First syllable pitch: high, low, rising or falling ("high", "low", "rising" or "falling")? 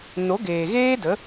rising